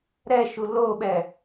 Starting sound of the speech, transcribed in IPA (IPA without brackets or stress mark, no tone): ɾ